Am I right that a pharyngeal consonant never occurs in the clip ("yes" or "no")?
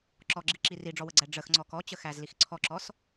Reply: yes